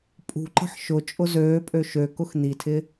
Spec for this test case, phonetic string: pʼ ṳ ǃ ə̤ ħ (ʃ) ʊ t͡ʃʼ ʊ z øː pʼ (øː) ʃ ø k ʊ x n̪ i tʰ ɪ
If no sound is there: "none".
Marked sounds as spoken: ʃ, ø

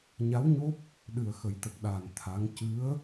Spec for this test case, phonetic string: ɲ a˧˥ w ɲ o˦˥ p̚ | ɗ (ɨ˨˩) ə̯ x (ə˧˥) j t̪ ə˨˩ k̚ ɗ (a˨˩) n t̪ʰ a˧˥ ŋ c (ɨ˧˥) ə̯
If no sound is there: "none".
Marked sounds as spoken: ɨ˨˩, ə˨˩˦, aː˨˩, ɨ˧˥

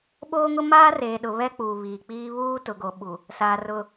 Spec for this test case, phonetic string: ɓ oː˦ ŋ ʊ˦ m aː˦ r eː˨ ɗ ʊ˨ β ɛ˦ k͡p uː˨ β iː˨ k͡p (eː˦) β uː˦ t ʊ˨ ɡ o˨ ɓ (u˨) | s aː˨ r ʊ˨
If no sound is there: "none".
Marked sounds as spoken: iː˦, u˨

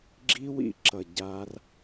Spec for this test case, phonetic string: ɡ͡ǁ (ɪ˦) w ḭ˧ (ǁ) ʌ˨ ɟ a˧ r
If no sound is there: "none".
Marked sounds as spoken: i˦, ǁ

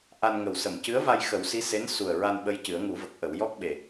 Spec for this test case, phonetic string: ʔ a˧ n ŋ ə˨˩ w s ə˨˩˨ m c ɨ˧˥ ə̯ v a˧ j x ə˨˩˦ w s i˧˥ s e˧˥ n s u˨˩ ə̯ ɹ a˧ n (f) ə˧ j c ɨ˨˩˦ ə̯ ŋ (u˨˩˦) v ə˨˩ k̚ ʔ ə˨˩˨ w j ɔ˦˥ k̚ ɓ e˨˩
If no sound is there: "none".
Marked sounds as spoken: ɓ, u˨˩˦

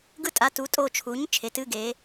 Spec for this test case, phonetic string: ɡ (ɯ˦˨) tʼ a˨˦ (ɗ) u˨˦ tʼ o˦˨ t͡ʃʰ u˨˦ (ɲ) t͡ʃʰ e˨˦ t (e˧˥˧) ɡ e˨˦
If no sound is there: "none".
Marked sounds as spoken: ɯ˦˨, t, ɲ, ɨ˧˥˧

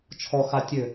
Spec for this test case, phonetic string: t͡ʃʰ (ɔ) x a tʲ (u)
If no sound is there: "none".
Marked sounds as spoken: ɔ, ø

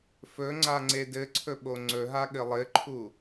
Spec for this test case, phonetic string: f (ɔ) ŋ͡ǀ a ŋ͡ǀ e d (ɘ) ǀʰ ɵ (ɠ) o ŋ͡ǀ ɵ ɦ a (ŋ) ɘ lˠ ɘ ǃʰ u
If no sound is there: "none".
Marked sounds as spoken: ɵ, ɘ, ɓ, ɠ

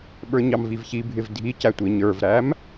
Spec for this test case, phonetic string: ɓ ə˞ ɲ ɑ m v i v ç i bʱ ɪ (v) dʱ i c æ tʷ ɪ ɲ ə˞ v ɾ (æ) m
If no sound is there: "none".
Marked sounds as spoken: v, æ

